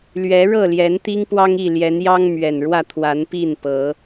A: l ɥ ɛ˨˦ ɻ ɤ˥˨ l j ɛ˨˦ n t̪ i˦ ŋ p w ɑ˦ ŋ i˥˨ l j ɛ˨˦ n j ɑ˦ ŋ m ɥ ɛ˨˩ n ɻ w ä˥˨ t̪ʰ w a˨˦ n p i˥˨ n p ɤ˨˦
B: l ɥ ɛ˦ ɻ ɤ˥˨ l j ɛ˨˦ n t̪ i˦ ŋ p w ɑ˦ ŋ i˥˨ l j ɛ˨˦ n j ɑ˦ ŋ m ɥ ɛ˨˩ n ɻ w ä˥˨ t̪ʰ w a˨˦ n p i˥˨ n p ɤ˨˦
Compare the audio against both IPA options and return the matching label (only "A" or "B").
A